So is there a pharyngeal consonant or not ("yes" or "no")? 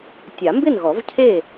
no